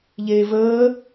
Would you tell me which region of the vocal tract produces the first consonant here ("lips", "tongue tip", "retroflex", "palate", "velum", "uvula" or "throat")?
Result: palate